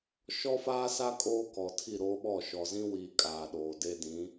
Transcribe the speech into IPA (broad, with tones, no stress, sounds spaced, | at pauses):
ʃ ɔ˦ f aː˦ s a˦ kʼ oː˦ k ɔ˨ tʰ i˦˨ ɾ oː˦ ɓ ɔ˦˨ ʃ ɔ˨ z ĩ˦ w iː˨ kʼ aː˨ ɗ oː˨ d e˦ d ĩ˨˦